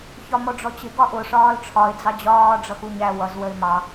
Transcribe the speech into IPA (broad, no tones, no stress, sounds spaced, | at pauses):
ç ɒ m ɔ ɖ͡ʐ ɔ t͡ɕ ɪ ɡ ɒ ʔ ʊ ʂ ɒː l ʈ͡ʂʰ ɒ ɪ̯ d͡z ɑ d͡ʑ ɒː ɖ͡ʐ ʌ x u ɲ æ w ʌ z w ə ɪ̯ m ɑ